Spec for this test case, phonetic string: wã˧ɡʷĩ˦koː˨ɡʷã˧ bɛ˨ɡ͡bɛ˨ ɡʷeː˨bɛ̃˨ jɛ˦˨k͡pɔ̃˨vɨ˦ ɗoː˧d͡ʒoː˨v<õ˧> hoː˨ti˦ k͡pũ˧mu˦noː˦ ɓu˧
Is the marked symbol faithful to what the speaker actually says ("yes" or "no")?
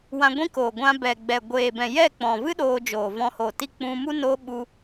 no